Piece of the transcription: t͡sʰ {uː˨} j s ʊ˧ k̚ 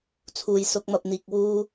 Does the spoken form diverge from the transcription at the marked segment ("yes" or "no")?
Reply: no